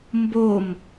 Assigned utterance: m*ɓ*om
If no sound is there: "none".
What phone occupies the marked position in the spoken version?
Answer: b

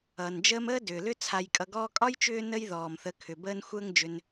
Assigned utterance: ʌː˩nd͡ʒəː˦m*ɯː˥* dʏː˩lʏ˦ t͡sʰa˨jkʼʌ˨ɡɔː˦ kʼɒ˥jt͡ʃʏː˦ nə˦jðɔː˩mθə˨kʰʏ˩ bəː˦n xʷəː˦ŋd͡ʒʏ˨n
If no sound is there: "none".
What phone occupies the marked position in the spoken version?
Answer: əː˥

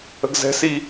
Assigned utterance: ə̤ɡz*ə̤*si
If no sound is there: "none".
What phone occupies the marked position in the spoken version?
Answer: ɛ̤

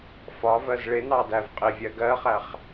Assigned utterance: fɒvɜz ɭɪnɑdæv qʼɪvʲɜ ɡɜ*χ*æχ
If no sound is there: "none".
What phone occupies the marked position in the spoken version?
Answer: χ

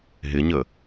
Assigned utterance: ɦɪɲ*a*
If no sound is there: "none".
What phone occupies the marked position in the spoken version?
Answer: ə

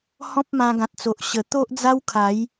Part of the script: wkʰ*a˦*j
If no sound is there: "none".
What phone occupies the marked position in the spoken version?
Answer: a˨˦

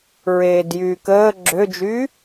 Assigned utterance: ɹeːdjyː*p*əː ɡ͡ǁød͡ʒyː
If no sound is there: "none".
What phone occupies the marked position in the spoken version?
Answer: k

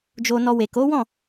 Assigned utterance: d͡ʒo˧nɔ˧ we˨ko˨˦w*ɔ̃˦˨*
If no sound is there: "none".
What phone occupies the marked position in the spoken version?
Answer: ɔ̃˦˨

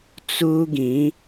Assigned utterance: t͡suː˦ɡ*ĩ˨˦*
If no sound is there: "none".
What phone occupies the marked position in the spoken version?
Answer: ĩ˨˦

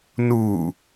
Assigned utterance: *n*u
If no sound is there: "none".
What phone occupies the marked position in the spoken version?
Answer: n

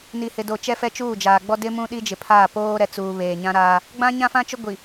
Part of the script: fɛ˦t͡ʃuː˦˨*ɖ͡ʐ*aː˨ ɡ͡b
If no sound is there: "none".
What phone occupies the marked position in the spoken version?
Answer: d͡ʒ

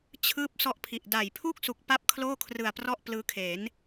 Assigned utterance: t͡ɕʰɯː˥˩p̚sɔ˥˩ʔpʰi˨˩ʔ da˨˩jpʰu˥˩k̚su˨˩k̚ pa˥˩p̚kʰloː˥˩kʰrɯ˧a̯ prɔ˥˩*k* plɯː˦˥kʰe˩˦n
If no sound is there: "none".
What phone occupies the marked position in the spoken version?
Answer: ʔ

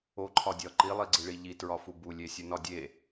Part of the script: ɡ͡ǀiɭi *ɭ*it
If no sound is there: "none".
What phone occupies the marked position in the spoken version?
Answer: ʎ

